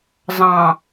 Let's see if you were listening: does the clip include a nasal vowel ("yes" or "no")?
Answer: yes